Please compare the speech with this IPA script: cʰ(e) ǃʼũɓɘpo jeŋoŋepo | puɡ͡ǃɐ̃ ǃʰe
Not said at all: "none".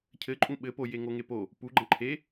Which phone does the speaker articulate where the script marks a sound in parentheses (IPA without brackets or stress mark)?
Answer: ɘ